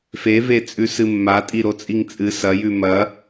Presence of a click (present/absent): absent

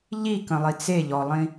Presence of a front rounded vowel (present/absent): absent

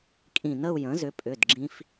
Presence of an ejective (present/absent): present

